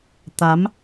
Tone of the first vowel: rising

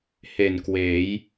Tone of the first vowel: low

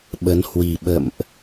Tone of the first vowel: rising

